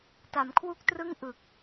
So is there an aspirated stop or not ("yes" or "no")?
yes